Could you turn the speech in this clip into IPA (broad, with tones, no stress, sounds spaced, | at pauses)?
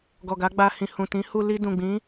ɡ ɔ˨ ɡ a˨˦ ɡ͡b a˧ h ĩ˨ h ũ˨ t ĩ˨˦ h u˧ l i˧ d ũ˨ ɡ͡b ĩ˨˦